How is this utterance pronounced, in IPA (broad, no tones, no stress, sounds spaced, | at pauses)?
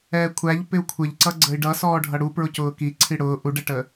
ɛː kʷʰ æ ʎ p ɪ u̯ kʷʰ ɪ ʎ ǀ ʌ ɡ͡ǀ ə i̯ ɖ ʌ s ɔː ɖʱ ʌ ɽ u p ɹ ʊ c ʊː k i ǀʰ i ɽ ʊː ʔ u ɖ ɛ ʈ əː